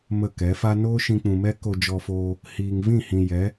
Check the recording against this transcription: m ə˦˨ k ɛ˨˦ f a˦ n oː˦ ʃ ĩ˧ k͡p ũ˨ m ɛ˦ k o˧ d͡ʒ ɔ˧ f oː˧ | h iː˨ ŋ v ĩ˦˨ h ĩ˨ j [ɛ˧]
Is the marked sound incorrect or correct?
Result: incorrect